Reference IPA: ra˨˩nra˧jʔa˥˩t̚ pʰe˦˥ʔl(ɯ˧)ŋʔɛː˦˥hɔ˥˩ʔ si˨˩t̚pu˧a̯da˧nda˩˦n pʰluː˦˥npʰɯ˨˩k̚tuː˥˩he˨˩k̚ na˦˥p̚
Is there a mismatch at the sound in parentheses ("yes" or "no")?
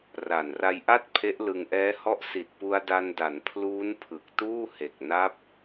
no